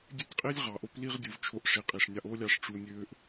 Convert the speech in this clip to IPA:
dʲ e˦ tʲ qʼ i˦ lʲ ʁ ɑ˨ ʔ o˦ p l i˦ ʁ dʲ u˨ v t͡ʃʰ o˧ ʔ ʂ i˨ qʼ i˨ ʂ nʲ ɑ˧ ʔ o˦ lʲ ɑ˧ ʂ ʈ͡ʂ u˧ nʲ ø˦ ʔ

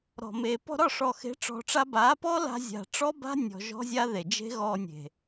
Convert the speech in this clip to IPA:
ɾ ɔ̤˨ m e˨ p ɔ̤˧ ɾ ɒ˦˨ ʂ ɔ˨ x e̤˨˦ ʈ͡ʂ ɔ̤˧ ʈ͡ʂ a˦ b a˨˦ p ɔ˦ l a̤˧ zʲ a̤˨ ʈ͡ʂ ɔ˦ b a̤˦ nʲ ɔ̤˧ ʒ ɔ̤˦ zʲ a˦ ð e˨ d͡ʒ e̤˦ ɣ ɔ˧ nʲ e̤˨

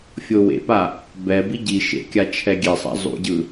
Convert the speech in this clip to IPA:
fʲ o w ḛ p a | b ɛ b i ɟ i ʃ ḛ kʲ a t͡ʃʰ ɛ ɡʲ e sˤ a̰ zˤ ṵ ɟ ɯ

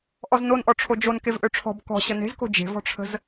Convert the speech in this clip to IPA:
ʔ ɔ z n o n ʔ ɔ ʈ͡ʂʰ o d͡ʒ o n k e v ʔ ø ʈ͡ʂʰ ɔ̤ b k ɔ̤ ɕ ə n e̤ z k o̤ d͡ʒ e̤ v ɔ̤ ʈ͡ʂʰ ə̤ z

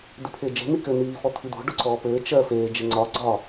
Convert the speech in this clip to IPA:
d̪ i pʰ ɪː d͡ʒ e̤ n̪ i k ɘ n̪ iː f ɔ t̪ʰ i d̪ o̤ ɖ o ǀ ɔː p ɘː t͡ʃ ɜ f eː d͡ʒ ɪ ŋ͡ǀ ɒ ɡ͡ǀ ɒ

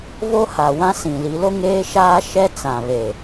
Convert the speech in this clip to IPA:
v o˦ h a˨ w ã˦ s ĩ˨ l i˨˦ l o˦ ŋ eː˦ ʃ aː˦ ʃ ɛ˦ t͡s ã˨ β e˨

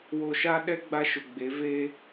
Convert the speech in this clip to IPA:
w o˨ ʃ a˦ ɗ ɛ˦ ɡ͡b a˦ ʃ ʊ˨ ɡ͡b e˨˦ v e˦

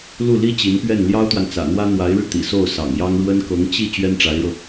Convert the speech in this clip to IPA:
l u˥˩ l i˥ t͡ɕ i˧˥ n p ɥ ɛ˥˩ n l j ɑ˥ ʊ̯ t̪ w a˨ n t͡s ä̰˨˩ n̪ w ä˥ n̪ w a˧˥ ɪ̯ ɻ ɻ̩˧ t̪ ḭ˨˩ s o˥˩ ʊ̯ s ɑ̰˨˩ ŋ j ɑ˥ ŋ ɻ w ə˥ n k ɤ˧˥ ŋ t͡ɕ i˥˩ t͡ɕ ɥ ɛ˥ n ʈ͡ʂ a˧˥ ɪ̯ ɻ ɤ˧

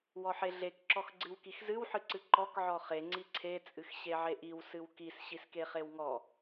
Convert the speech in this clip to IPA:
w ɔ ħ e ɮ e k ǁ ɔ x ɡ͡ǀ ɨ w k i x z ɨ w ħ ɨ ǀ ɨ ǃ ɔ k ʕ ɔ χ e ŋ͡ǀ i ǀʰ e t͡sʼ ɨ x ɕ e ʕ e ʔ i w s ɨ w k i s ɕ i s k e χ e w ŋ ɔ

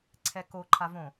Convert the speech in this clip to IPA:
ǀʰ ɛ k o ǃʰ a v õ

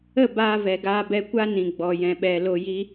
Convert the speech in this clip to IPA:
ə˦˨ b aː˧ v ɛ˨ ɡ aː˧ b ɛ˧ kʷ a˦ n ĩ˨ ɡ͡b ɔ˨ j ɛ̃˨ ɓ ɛ˨ l o˧ j i˦

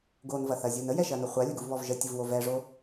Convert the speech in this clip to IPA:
ɡ o n v ɐ θ ɐ zʲ u n ə j ɛ ʃ ɐ n ʊ χʷ a lʲ ə ɡ u v β ɔ v ʒ ə tʲ ʊ v w o v ɛ ʐ o

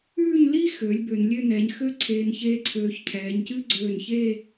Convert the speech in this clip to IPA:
ʉː˥˧ ɲ l i˥ x øː˩˧ lʲ b ø˩˧ n lʲ ø˥˧ n ɛː˩˧ ɲ x ø˥ ǀʰ eː˧ n ç eː˥ ǀʰ øː˧ ç cʰ ɛː˩˧ ɲ c ɨ˥ ɡ͡ǀ øː˧˩ n ç e˥˧

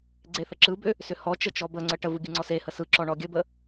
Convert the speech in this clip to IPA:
ɡ͡ǀ e θ ə ǁ ɯ b ʏ | s ʏ h ɔ t͡ʃ ə t͡ʃ ɔ b ə ŋ͡ǀ ə ʈ ə v ɯ ɡʲ ɯ ŋ͡ǀ ɔ s e h ə s ɯ ǁ ɔ ɳ ɔ ɡʲ ə b ə

